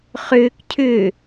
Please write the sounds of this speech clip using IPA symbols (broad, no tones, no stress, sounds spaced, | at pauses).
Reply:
χ ʏː k cʰ ʏ